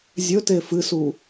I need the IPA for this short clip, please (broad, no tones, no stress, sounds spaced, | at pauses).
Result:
zʲ ɵ t e f ɨ s u